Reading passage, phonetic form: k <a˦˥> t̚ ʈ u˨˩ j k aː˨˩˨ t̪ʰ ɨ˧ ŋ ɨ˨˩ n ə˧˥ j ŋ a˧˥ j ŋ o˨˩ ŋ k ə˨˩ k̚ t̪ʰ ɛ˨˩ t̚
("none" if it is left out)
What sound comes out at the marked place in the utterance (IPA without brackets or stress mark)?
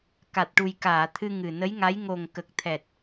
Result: a˨˩